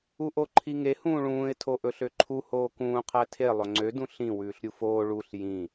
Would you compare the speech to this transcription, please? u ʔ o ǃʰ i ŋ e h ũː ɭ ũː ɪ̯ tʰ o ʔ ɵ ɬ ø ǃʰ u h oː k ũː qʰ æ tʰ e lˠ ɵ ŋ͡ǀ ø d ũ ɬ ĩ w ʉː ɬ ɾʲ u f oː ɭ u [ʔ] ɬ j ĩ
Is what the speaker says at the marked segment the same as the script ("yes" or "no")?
no